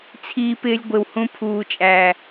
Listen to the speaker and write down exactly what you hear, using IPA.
t͡sʰ iː˧ p ɪː˧ lʲ ɡʷ ɪ˨ w h ũ˧ pʰ uː˨ t͡ʃʼ æː˨

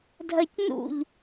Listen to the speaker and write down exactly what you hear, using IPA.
dʱ ɐ c n ṵ ʎ

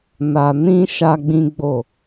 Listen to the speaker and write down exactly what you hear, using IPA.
n a˨ n ĩ˧ ʃ a˦ ɡ͡b ĩ˦ ɡ͡b o˦˨

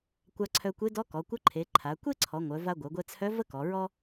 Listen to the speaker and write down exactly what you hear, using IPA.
kʷ a˧ ǀʰ œ˧ kʷ e˧˥ d ɔ˧˥ k ɔ˩˧ kʷ ə˧˥ ǃʰ e˩˧ ǃʰ a˩˧ kʷ e˥ ǀʰ ɔ˩˧ ŋʷ œ˩˧ v a˧ ɡʷ œ˩˧ ɡʷ ɛ˧ t͡sʰ œ˧˥ v ə˥ k ɔ˩˧ ɹ ɔ˥

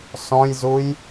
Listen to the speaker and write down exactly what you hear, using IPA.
s ɔ̃ j z u j

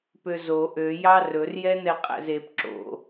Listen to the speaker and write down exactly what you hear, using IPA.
p ø z o ʔ ø j ɑ r ɵ r j ɛ n ɛ qʼ æ̰ z e p ǁ o̰

